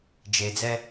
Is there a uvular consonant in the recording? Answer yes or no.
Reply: no